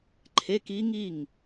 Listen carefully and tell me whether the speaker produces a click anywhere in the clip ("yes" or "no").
yes